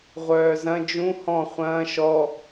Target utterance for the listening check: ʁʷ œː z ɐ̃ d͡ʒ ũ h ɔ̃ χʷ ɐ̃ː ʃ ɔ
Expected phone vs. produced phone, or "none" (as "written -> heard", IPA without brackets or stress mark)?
none